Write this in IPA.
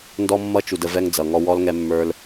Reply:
ndɔ˦mːʌ˦ t͡ʃu˨də˨ vɛ˦ŋd͡zʌ˨ŋɔ˦ wɔ˦lŋɛ˦mːə˞˦l

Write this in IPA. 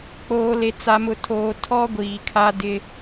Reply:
k͡poː˨le˨ t͡sa˨mʊ˨tʰoː˨ tʰɔ˦ ɡʷiː˨kʰa˦ dɪ˦

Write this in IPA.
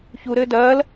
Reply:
çuɾɘː dɐːl

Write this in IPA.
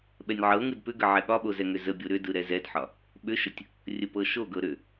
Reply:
ɓɛnʲʕɤŋɯd pʏɡə ʕɛɠɒɓo zɛŋʏzəbʲo ɾʏdɯ ɾɛzɛdħɒ | ɓʏʃətʲ | rʲəpɤʃoɡɤ ɾʏ

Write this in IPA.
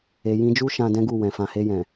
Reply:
e˨jĩ˧d͡ʒu˦ ʃã˧dɛ̃˦ɡu˦˨ wɛ̃˨fã˧ he˧jɛ̃˨

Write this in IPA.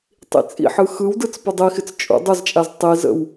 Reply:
tˤḭt͡sʼḭħɯ xɯwdɯt͡s pʊdˤixɪt͡s t͡ʃʼṵ dˤʊzt͡ʃʼaz tˤizə̰w

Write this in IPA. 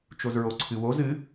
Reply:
t͡ʃozɹoǀʰɨwoz ɨ

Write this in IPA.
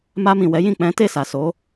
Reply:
ma˧mĩ˨ wɛ˨˦jĩ˦˨ k͡pɛ̃˨˦te˦˨sa˨so˨˦

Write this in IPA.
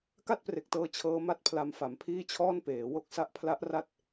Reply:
ka˥˩t̚pre˨˩k̚tɤː˧ t͡ɕʰɤː˦˥ma˥˩t̚pʰla˧m fa˩˦mpʰiː˥˩t͡ɕʰɔː˥˩n peː˩˦wo˥˩k̚ sa˦˥ʔpʰla˦˥ʔra˦˥t̚

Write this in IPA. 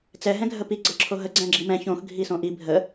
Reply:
t͡sɛ ɦɛ̃ɡʱəpi ɡ͡ǀɤǁʰoɦə ɡ͡ǀɛ̃ɡ͡ǁimɛ̃ çõx ɡʱisõʔi bʱə

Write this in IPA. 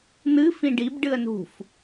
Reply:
n̪ɨ fĩɖib ɖɨə̯nṳf

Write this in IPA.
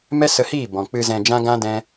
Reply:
mɛ˦sə˧hiː˦˨ bɔ̃˨ k͡pɨ˧zɛ̃˧ d͡ʒã˦ɡã˦dɛ̃˦

